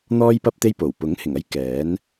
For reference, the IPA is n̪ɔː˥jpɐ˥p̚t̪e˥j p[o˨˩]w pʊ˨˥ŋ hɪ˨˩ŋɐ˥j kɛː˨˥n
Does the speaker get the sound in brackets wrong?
no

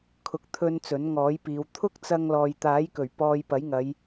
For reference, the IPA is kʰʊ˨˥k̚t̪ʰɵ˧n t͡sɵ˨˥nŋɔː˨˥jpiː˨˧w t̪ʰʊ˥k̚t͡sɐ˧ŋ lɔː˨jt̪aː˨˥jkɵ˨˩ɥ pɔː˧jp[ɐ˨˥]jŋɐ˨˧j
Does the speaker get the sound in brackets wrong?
no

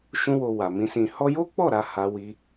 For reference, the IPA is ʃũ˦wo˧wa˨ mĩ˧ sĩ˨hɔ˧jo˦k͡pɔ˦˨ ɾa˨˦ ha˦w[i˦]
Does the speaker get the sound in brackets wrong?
no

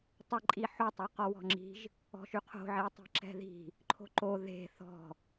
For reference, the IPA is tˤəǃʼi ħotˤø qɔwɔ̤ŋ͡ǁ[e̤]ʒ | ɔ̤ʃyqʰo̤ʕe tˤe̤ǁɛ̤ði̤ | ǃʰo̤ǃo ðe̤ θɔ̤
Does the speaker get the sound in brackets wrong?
yes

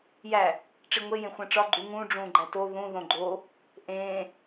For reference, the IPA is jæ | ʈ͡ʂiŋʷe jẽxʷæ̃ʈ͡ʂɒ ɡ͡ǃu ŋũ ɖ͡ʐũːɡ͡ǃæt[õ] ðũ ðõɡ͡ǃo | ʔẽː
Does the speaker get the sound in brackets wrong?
yes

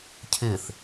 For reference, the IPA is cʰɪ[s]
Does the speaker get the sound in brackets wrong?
yes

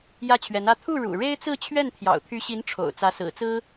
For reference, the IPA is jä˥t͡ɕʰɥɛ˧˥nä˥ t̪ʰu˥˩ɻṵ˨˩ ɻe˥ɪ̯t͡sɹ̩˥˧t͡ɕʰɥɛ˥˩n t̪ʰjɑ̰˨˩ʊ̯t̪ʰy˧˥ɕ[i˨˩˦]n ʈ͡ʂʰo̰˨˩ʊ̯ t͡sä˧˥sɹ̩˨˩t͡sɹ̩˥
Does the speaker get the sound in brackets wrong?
yes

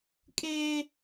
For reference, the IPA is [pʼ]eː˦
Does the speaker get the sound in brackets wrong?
yes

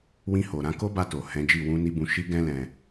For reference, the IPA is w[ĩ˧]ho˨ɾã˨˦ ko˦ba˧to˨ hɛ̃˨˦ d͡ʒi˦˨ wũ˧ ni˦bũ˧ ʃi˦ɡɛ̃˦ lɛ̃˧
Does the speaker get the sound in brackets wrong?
no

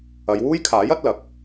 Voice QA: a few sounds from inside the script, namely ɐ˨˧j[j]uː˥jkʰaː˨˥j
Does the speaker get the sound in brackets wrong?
yes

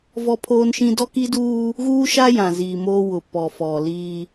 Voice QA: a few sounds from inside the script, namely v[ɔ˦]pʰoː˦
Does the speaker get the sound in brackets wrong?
no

